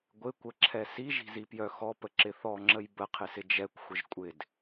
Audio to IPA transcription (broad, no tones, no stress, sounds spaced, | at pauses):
ɡʷ ɪ kʷ ə ǁʰ ɛ s i ʒ i̤ z i p j œ x ɔ p ə ǁ ɪ θ ɔ ŋ͡ǁ ə j b ə qʰ ɪ s ɪ d͡ʒ ɛ kʷ xʷ ɪ ʒ kʷʼ ɪ d